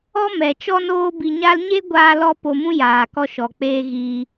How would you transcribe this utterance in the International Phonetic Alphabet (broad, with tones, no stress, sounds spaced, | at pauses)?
ɔ˦ m ɛ˨ t͡ʃ ɔ˦ n oː˦ b i˧ ɲ a˦ l ɲ e˦ ɡʷ aː˧ l ɔ˧ p o˧ m ũ˦ j aː˨ k ɔ˧ ʃ ɔ˨ k͡p eː˧ ɣ iː˧